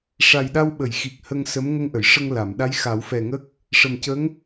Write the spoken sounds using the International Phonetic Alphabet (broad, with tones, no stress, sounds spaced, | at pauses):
ʂ a˨˩ j ɗ a˧ w ɓ ə˨˩˨ j x i˨˩ k̚ h ə˧ ŋ s ə˧˥ m ŋ ə˧ ŋ ʔ ə˨˩˨ j ʂ ə˧ ŋ l a˨˩˨ m ɗ a˧˥ j x a˨˩˦ w f ɛ˨˩ ŋ ə˦˥ k̚ | ʂ ə˨˩ m c ə˧˥ ŋ